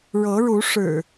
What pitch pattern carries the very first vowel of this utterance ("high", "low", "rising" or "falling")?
rising